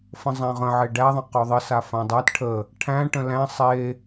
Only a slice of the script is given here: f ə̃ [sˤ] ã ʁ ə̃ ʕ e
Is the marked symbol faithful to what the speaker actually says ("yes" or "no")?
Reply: no